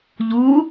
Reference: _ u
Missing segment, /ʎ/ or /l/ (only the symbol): ʎ